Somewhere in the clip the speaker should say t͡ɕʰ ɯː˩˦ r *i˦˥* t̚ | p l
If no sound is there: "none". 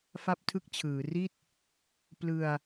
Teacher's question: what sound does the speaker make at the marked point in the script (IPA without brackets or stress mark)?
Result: i˥˩